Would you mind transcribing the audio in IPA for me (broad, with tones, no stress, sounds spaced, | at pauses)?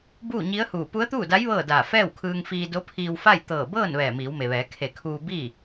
b uː˥˨ ɲ i˧˥ ə̯ h uː˧˩ p u˧˥ ə̯ t̪ uː˥˨ d a˧˥ j ʋ ɤː˥˨ d aː˧˩ f ɛː˥˨ w kʰ ɯː˧ ŋ f iː˧ d o˧˥ pʰ iː˧ w f a˥˨ j t̪ ɤː˧˩ b ɤː˥˨ n ʋ ɛː˧˩ m iː˩˧ w m e˩ ʋ ɛː˩˧ kʰ e˧˩ kʰ uː˧ b i˥˨